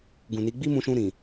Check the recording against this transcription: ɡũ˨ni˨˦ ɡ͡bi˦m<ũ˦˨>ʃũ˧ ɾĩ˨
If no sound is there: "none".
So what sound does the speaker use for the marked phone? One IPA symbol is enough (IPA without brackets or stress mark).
ũ˧